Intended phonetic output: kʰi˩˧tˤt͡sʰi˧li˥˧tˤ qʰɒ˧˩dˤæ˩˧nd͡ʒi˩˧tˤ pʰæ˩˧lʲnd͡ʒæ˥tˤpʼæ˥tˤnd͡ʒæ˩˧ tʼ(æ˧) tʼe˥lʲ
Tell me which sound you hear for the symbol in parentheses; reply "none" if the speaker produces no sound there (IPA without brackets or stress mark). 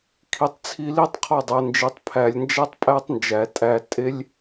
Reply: æ˧